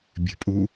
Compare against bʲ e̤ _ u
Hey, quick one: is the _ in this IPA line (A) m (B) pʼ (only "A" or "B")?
B